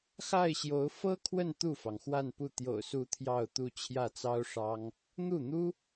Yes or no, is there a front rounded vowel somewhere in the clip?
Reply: no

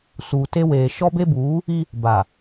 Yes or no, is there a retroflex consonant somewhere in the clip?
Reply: no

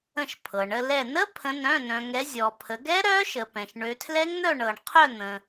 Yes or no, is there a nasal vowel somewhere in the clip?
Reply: yes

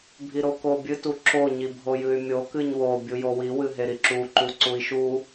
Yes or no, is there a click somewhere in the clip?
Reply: yes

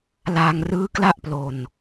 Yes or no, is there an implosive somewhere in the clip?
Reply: no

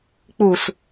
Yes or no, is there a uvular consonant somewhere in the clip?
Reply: no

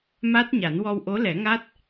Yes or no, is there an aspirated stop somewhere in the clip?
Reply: no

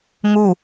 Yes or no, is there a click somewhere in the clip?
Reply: no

